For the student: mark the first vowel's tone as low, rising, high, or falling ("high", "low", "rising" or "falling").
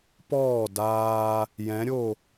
falling